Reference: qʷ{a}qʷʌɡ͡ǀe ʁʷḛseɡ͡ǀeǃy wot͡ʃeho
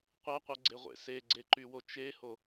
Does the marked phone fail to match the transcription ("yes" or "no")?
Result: no